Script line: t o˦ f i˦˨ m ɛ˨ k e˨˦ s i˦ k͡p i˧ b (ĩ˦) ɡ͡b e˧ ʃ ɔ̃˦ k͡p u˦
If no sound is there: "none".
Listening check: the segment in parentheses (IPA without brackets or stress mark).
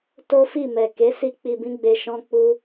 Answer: ĩ˦